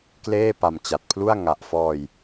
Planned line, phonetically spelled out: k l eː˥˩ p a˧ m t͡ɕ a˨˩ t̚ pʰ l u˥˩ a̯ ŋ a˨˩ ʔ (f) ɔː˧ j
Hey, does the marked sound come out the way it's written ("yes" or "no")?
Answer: yes